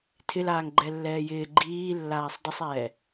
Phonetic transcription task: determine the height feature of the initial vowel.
high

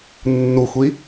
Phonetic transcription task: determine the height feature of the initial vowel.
high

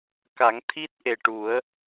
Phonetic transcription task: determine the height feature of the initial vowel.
low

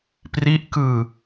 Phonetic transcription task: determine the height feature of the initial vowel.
high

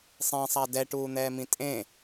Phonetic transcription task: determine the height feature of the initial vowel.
mid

